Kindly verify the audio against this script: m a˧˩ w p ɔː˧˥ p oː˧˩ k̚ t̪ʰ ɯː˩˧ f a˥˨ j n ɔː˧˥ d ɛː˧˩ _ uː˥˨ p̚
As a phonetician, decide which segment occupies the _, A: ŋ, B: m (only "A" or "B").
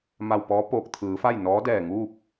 A